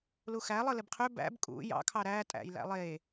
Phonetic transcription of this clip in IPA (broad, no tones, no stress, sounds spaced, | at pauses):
l u x æ lˠ ɯ l e b qʰ ø b æ̰ b kʼ ṵ j ɑ̰ kʰ ɑ ɾ æ tʼ æ̰ j l æ̰ lˠ e